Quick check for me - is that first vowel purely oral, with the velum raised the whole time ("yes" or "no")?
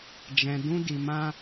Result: no